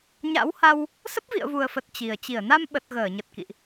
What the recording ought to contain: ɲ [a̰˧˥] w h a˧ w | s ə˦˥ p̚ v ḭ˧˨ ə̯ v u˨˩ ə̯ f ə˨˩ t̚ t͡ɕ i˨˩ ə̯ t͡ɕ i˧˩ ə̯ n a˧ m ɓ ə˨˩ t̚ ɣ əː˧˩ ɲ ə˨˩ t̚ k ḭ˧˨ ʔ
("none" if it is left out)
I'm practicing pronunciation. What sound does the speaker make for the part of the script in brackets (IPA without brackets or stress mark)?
a̰˧˥